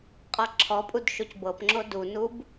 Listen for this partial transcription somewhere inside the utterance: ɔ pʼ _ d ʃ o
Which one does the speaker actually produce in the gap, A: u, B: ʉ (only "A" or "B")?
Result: A